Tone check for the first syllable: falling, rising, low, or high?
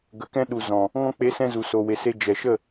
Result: rising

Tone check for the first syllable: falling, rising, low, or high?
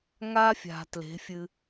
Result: high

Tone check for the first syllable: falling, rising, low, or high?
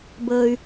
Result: low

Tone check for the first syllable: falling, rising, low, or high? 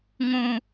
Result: high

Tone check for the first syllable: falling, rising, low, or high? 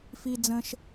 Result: high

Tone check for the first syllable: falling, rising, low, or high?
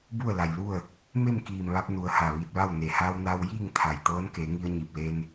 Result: falling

